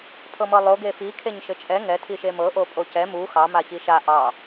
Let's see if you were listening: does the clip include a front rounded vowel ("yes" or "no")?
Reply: no